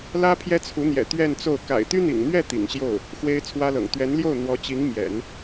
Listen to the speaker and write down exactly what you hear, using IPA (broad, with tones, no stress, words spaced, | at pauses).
lä˥ pʰjɛ˥t͡sʰu˧˥n̪jɛ̰˨˩ t̪ɥɛ˥˧nt͡so˥˩ʊ̯ ka̰˨˩ɪ̯t̪y˥n̪ḭ˨˩ŋn̪ɥɛ˥˩ t̪ḭ˨˩ŋɕjo˥˩ʊ̯ | xwe˥ɪ̯t͡sʰwä˥lɤ̰˨˩ŋ t̪ɥɛ˧˥nljo˥˩ʊ̯ n̪wɔ˧˥t͡ɕi˧˥ŋ mjɛ̰˨˩˦n